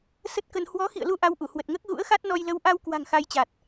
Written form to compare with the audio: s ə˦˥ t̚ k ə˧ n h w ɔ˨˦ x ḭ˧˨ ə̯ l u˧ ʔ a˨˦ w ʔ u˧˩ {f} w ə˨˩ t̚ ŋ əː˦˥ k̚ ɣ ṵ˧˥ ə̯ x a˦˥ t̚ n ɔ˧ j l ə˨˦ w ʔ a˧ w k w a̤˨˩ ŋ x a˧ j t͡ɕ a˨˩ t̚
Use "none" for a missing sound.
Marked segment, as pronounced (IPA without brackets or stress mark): h